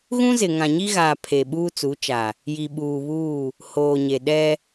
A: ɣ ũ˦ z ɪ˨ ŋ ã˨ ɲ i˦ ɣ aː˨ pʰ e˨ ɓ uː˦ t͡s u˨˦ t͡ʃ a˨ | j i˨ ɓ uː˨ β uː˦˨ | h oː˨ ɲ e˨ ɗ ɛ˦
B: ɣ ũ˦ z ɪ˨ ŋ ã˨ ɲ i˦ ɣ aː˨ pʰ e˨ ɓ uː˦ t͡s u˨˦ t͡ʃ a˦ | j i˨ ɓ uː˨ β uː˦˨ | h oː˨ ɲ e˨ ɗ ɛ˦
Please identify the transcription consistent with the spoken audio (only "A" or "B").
A